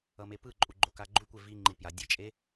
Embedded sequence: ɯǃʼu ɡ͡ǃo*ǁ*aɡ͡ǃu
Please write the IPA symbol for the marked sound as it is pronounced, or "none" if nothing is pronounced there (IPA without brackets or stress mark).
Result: k